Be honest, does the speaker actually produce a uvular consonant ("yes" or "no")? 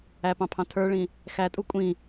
no